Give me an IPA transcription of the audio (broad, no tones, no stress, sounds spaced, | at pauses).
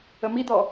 ə m i d̪ ɔ